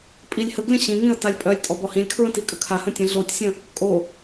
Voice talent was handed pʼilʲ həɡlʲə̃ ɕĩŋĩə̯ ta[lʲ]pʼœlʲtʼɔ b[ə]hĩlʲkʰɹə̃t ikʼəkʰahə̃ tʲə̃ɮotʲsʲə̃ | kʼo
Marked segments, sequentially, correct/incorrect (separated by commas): correct, incorrect